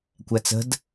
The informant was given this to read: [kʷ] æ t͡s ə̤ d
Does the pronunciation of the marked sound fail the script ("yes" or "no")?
no